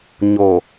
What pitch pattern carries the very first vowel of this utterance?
low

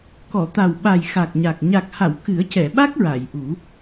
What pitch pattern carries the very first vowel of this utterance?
low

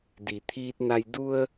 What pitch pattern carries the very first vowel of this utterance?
low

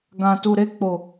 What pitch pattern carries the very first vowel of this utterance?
low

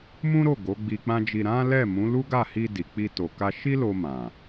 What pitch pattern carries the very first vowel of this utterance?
high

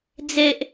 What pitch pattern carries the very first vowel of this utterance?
high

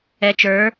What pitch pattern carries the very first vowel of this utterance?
low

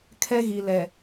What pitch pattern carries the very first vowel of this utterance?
high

